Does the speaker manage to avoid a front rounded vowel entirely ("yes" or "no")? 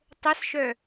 no